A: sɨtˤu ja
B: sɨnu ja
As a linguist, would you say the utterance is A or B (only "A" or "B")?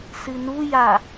B